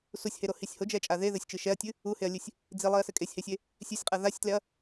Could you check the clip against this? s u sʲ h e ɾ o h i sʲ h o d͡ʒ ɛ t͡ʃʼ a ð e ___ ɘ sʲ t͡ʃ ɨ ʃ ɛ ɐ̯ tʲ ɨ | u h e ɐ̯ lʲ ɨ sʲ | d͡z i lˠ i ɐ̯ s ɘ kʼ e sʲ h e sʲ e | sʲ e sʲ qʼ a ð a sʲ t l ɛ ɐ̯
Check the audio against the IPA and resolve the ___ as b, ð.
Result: ð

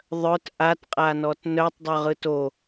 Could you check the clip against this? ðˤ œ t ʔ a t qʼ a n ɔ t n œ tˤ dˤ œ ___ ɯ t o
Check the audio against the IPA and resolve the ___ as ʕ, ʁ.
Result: ʁ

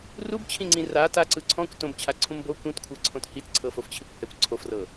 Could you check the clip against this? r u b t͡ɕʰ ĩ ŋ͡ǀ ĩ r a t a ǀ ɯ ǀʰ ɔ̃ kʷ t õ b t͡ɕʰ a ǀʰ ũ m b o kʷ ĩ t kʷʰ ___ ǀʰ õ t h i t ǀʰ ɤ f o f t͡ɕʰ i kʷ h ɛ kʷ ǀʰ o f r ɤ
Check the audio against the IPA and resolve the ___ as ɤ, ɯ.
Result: ɤ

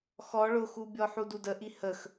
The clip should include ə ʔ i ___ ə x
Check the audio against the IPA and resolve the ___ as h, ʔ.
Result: h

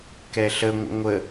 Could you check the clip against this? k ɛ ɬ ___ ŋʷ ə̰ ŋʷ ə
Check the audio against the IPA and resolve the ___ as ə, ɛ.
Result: ə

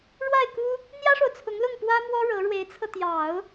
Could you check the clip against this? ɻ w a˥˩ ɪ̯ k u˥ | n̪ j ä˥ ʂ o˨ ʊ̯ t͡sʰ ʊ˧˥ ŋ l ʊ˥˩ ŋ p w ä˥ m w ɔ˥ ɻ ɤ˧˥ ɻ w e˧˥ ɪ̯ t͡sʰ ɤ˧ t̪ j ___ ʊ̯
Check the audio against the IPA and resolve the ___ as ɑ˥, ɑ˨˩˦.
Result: ɑ˨˩˦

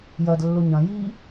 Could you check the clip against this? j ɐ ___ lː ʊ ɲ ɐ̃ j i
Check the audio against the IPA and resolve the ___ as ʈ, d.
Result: d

